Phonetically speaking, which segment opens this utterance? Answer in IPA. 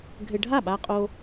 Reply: ɡʱ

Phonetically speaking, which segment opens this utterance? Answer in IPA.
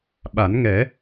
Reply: ɓ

